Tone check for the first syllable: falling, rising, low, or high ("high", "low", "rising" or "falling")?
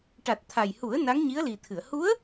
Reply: low